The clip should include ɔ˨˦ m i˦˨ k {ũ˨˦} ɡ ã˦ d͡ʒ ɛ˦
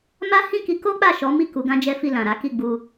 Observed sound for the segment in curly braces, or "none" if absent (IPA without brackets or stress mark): u˨˦